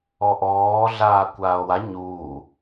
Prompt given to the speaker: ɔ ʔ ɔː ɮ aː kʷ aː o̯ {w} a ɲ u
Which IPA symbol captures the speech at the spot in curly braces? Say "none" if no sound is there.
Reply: w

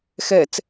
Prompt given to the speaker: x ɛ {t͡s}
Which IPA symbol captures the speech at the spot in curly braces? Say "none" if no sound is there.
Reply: t͡s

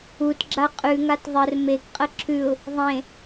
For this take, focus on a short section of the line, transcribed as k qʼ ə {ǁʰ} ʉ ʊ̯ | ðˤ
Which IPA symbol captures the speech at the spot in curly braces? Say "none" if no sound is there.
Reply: ǁʰ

